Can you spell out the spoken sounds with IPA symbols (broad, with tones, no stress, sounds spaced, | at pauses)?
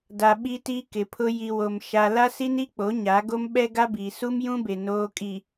d a˨ ɓ i˦ t i˦ k ɪ˨ pʰ ʊ˦ j i˨ w o˨ m ʃ a˨ l a˦ s i˦ n i˦ k͡p o˨˦ ɲ a˨˦ ɡ o˦ m ɓ ɛ˦ ɡ a˦ b iː˨ s u˦ m j ũ˦ b e˨ n oː˦ kʼ i˨